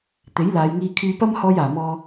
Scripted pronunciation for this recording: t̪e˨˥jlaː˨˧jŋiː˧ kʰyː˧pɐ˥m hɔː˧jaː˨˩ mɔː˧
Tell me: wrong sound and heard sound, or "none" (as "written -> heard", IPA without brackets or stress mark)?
none